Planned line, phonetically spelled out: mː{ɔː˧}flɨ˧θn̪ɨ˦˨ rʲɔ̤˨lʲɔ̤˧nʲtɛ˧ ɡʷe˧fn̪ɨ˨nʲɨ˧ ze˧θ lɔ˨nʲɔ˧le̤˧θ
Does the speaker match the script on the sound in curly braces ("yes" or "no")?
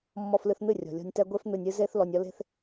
no